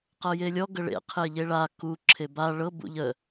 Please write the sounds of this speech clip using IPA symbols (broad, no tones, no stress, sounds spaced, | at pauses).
q ɤ j e lʲ ɔ ɡ ə ɭ ḛ qʰ e ʎ e ɭ a k u ǁʰ e b a ɭ ɤ b ṵ ʎ ə